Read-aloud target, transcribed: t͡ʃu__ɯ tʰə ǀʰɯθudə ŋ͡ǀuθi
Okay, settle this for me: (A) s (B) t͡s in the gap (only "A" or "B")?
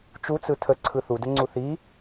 B